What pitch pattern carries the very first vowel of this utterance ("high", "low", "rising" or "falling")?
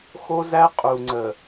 high